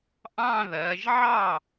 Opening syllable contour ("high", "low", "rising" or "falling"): falling